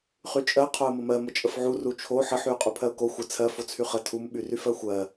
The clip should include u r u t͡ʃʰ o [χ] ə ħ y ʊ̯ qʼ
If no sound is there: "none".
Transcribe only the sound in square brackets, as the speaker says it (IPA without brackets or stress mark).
ħ